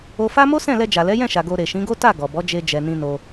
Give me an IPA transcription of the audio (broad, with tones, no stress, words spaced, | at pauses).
o˧fa˦ mo˦sɛ̃˦˨lɛ˧ d͡ʒa˨lɛ˨˦jɛ̃˦˨ʃa˨ ɡo˧ ɾe˨ʃĩ˨˦ɡo˦ ta˦˨ ɡɔ˨bɔ˨˦d͡ʒe˧ d͡ʒɛ˨nĩ˧no˧